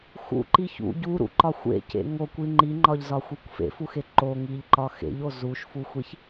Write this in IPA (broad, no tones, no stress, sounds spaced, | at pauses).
x ṵ ǃ i ç ṵ ɟ u ɾ ṵ ǃ ɒ xʷ ḛ c ḛ ŋ o kʷ i ŋ͡ǃ i ŋ͡ǃ ɒ ʎ z ɒ xʷ i kʷ f ḛ f u x e ǃ o ŋ i ʎ ǃ ɒ x ḛ ʎ o z u ʃ f u xʷ i ç